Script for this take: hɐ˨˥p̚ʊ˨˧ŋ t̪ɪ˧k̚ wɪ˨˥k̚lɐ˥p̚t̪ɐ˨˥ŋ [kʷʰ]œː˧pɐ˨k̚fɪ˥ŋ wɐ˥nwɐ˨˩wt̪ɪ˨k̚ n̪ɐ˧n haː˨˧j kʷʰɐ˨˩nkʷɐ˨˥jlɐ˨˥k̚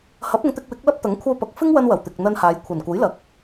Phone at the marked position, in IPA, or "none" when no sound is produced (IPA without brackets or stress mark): kʷʰ